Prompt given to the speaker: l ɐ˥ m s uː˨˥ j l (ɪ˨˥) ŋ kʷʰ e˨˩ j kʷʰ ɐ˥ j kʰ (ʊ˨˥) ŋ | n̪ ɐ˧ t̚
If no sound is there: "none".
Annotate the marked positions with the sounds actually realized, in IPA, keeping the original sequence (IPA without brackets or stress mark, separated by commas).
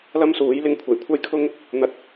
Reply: ɪ˧, ʊ˥